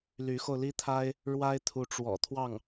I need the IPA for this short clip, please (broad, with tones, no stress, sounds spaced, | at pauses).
l y˧˥ x o˧ ʊ̯ l i˥ t̪ʰ a˥ ɪ̯ | ɻ w a˥ ɪ̯ t̪ʰ u˧˥ ʈ͡ʂ w ɔ̰˨˩ t̪ʰ w ɑ˥˩ ŋ